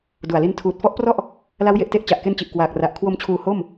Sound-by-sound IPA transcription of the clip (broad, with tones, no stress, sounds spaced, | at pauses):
d u˨˩ a̯ l i˦˥ n tʰ uː˨˩ t̚ f ɔ˦˥ ʔ p r ɔ˥˩ ʔ | l a˦˥ w j e˨˩ ʔ t e˥˩ ʔ t͡ɕ a˨˩ ʔ k e˦˥ n t͡ɕ i˨˩ ʔ k w aː˨˩ k̚ r a˨˩ ʔ kʰ w o˧ m t͡ɕʰ uː˨˩ h o˥˩ m